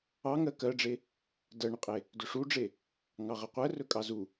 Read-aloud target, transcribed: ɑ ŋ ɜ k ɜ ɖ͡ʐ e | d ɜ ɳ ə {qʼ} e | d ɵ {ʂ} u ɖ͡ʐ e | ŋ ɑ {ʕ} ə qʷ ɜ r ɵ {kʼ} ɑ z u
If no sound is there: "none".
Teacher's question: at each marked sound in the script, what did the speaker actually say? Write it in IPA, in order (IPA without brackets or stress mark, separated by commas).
qʼ, ʂ, ʁ, kʼ